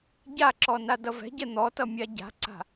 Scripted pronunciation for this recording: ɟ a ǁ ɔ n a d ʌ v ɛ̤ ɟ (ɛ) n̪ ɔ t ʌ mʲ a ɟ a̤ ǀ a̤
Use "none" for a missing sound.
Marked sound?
ɛ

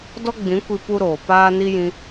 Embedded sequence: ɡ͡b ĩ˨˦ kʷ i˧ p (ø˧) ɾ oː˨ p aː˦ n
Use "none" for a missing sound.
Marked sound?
u˧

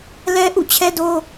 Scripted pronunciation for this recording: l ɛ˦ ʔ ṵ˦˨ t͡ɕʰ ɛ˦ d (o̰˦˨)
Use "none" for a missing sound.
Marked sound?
o˦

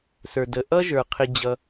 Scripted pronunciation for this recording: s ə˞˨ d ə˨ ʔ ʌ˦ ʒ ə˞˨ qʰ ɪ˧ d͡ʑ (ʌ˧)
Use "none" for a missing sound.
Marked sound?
ʌ˧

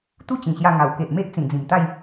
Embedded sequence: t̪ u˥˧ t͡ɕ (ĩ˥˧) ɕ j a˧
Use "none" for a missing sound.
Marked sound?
ĩ˨˩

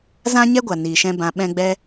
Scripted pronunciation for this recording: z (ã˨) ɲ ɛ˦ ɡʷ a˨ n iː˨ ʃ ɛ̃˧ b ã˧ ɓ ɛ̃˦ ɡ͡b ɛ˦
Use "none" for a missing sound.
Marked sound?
ã˦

